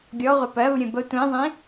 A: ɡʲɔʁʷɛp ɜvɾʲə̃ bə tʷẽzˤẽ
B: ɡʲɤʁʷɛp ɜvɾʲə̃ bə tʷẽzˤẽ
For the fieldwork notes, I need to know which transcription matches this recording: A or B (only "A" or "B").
A